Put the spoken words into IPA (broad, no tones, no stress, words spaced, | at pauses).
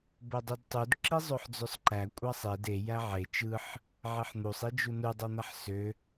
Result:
bodˤudtˤud ǁizˤøħd͡zøsˤǃæ kʷʼɑsˤed e jæʕe t͡ʃɯħ | ʕeħn̪usˤ id͡ʒunu dˤon̪æħsø